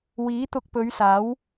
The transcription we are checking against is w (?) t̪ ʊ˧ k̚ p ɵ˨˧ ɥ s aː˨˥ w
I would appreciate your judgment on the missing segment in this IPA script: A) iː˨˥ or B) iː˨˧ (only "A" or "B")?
A